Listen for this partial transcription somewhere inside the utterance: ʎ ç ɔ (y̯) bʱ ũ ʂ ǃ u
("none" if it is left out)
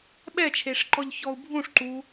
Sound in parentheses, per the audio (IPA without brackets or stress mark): u̯